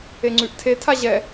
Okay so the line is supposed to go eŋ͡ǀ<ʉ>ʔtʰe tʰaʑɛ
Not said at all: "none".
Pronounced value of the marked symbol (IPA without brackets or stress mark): ʉ